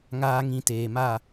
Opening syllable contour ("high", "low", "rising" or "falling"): high